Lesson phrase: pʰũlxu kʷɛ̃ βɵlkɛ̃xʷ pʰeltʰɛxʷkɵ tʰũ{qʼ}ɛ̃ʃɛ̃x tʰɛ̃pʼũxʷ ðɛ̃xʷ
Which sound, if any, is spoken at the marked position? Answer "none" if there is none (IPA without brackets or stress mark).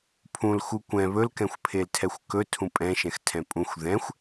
pʼ